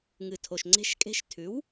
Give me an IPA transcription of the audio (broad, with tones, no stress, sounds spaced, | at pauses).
ŋ ɨ˨˩ tʰ o˨˩ ʃ ŋ͡ǀ e̤˧˥ ʃ kʼ e̤˧˥ ʃ tʰ ʉ˩˥ w